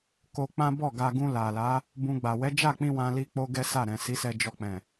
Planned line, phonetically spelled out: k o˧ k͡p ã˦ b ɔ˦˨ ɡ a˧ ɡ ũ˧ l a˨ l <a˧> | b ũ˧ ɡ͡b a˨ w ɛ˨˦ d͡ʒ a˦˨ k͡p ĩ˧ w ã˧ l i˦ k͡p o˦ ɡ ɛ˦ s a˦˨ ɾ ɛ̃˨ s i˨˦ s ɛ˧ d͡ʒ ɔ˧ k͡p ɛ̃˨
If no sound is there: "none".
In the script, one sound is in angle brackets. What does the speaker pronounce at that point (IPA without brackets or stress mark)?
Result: a˨˦